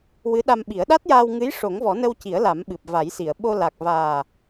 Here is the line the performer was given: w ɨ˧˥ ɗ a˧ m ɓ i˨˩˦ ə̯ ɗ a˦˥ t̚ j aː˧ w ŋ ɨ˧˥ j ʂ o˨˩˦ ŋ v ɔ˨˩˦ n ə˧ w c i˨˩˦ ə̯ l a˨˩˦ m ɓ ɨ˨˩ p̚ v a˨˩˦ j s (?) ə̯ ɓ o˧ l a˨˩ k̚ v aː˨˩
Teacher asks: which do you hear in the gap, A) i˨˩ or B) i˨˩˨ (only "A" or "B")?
B